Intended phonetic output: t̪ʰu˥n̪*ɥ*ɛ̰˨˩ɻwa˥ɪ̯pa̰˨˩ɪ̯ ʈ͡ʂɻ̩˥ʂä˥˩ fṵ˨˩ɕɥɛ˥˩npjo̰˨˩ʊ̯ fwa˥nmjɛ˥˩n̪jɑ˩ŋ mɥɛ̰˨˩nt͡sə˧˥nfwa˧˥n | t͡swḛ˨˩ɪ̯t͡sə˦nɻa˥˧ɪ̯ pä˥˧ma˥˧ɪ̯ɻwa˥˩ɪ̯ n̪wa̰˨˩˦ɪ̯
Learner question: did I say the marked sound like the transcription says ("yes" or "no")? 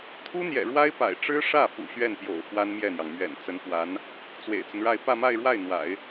no